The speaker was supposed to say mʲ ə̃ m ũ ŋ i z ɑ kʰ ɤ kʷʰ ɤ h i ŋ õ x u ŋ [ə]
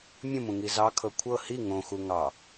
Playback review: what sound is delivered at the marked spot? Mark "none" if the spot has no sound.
ɑ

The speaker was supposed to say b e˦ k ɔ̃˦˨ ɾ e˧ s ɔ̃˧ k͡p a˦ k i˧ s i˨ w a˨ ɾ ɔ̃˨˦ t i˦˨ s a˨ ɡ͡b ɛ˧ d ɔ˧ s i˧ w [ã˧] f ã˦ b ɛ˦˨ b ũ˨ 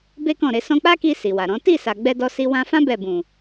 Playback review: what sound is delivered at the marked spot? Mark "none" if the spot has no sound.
ã˧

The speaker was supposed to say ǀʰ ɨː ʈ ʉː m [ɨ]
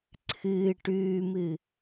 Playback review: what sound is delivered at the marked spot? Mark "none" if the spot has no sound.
ɨ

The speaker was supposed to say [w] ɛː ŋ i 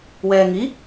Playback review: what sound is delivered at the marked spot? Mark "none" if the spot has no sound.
w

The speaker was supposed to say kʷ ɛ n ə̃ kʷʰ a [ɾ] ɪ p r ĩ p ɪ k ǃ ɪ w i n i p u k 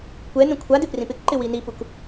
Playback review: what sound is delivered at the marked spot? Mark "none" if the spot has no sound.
d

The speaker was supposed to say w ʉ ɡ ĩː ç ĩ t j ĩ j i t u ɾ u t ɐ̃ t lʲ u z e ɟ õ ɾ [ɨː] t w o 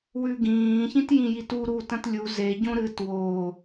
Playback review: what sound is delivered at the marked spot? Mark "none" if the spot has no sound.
ɨː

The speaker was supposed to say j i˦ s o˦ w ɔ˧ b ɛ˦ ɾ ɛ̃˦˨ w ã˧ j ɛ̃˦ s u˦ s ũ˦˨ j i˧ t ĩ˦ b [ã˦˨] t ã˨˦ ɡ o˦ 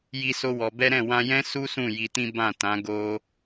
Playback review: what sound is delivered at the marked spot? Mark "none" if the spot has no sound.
ã˦˨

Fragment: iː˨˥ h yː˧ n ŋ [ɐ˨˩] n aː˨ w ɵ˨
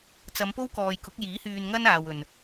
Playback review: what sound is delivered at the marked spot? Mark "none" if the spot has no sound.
ɐ˥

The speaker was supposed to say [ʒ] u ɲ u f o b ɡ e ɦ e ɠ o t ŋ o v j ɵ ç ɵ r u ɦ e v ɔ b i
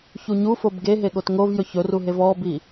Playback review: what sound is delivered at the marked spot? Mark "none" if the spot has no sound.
ç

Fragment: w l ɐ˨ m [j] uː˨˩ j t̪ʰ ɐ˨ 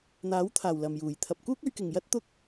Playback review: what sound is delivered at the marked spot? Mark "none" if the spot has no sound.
j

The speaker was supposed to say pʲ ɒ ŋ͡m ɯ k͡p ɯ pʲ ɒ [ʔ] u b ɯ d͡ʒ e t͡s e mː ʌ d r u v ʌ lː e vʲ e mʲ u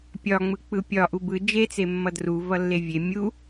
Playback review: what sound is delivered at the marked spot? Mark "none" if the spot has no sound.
ʔ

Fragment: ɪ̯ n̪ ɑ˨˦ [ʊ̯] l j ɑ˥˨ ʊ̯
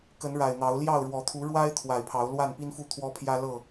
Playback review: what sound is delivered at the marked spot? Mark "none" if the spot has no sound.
ʊ̯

